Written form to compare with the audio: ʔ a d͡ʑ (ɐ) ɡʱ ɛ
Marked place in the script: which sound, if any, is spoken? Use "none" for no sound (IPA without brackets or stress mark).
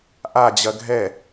ɐ